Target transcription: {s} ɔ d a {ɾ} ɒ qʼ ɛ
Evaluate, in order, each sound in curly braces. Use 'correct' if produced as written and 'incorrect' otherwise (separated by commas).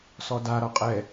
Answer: correct, correct